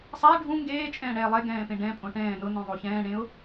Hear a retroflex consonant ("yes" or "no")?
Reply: yes